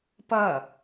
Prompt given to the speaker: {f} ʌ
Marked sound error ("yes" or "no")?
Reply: yes